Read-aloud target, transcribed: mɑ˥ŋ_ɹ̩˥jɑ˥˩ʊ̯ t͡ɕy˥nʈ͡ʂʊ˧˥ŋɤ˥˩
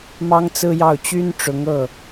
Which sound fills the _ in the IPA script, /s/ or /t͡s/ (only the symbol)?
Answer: t͡s